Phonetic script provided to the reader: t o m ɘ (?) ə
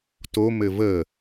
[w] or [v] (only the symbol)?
v